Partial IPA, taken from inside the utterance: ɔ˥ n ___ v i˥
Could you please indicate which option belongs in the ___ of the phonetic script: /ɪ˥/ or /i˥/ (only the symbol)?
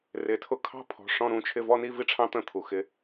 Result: i˥